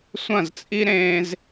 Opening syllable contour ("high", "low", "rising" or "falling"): falling